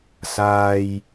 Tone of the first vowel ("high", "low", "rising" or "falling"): high